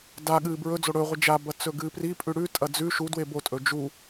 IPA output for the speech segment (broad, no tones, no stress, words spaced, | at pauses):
da ɠɨːbɹɵd͡zo ɽɵːʁʷɨ d͡ʒabɐ t͡sɵɡɨːpripʼʉ ɽʉtʼɐ d͡zʉ ʃu dwebotʼɵ d͡ʒu